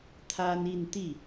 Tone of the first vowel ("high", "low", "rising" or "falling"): high